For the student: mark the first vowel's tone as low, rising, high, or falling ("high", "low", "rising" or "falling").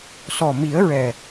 low